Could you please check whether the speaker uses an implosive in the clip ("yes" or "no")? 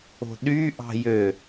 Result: yes